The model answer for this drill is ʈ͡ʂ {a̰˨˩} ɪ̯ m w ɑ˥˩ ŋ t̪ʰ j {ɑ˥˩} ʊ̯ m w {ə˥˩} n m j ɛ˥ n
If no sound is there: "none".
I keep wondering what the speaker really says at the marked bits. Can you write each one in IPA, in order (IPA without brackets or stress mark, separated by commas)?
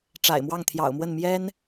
a̰˨˩, ɑ̰˨˩, ə˥˩